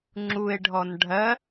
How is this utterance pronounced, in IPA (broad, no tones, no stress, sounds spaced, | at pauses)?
ŋ͡ǁ u e̯ ɖʱ ɔ n ɖʱ ɜ